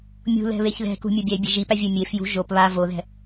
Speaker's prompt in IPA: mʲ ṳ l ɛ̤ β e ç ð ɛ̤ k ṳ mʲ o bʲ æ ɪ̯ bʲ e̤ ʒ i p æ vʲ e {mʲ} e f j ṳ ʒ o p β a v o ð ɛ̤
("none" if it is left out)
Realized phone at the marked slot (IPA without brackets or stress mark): mʲ